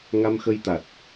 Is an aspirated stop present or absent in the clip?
absent